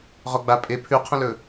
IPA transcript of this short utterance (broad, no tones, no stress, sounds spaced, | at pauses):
ʁ ɔ ɡ͡b a pʼ e pʰ ʉ qʰ ə̃ l ɵ